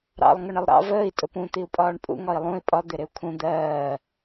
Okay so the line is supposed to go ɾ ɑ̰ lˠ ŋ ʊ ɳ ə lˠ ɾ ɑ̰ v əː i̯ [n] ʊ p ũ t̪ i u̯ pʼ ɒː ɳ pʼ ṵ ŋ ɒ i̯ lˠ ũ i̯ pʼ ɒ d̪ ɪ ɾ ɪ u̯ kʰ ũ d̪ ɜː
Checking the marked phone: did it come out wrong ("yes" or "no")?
yes